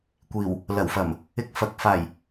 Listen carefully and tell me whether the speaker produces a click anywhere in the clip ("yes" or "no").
no